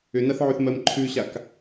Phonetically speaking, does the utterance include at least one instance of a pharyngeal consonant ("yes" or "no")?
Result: yes